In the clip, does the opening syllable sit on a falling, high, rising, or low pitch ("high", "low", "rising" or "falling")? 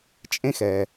high